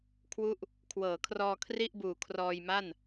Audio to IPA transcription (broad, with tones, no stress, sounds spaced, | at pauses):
kʰ w u˦˥ ʔ | kʰ w ɤː˩˦ kʰ r ɔː˧ kʰ r i˥˩ ʔ b uː˨˩ kʰ r ɔː˧ j m a˥˩ n